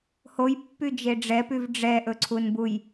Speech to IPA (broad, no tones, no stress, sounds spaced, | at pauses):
h o j pː y d͡ʒ e ɖ͡ʐ ɛ p y v ɖ͡ʐ ɛ ʔ ɵ ǀʰ u n b u j